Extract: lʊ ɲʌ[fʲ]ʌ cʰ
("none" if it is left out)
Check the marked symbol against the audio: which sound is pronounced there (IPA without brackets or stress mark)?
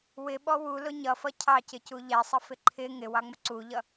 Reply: f